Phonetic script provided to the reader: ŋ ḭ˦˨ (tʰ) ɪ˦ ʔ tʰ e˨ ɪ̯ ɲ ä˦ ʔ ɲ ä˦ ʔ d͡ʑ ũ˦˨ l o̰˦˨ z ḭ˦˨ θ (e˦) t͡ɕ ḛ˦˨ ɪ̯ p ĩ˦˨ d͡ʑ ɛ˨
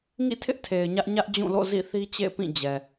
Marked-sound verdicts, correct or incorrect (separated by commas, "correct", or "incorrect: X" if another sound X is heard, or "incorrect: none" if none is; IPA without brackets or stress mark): correct, incorrect: i˦